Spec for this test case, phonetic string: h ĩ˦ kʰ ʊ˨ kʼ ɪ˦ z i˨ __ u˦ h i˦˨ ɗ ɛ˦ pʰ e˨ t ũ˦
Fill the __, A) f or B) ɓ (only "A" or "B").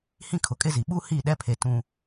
B